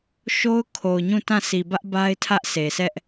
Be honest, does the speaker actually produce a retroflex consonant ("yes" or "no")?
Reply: no